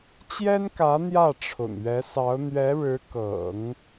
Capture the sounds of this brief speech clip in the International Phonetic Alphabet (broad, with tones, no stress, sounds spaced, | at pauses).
t͡ɕ j ɛ˥ n k ä˧˥ n̪ j ä˥˩ ʈ͡ʂʰ ʊ̰˨˩ ŋ ɥ ɛ˧˥ s ɑ˧˥ ʊ̯ n̪ ɥ ɛ˧˥ ɻ ɻ̩˧˥ k ɤ̰˨˩˦ ŋ